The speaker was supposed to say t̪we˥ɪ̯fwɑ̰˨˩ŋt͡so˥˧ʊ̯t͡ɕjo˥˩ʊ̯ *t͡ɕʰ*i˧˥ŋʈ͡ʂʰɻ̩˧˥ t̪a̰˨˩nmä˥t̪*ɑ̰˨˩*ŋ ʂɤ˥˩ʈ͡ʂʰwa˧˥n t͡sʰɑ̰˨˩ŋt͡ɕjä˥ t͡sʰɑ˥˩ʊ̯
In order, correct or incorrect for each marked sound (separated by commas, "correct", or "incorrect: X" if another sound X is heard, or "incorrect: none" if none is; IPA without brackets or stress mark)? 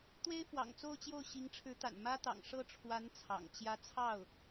incorrect: ɕ, correct